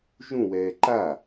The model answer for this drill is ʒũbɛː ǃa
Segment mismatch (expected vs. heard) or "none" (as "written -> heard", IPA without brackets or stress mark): b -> w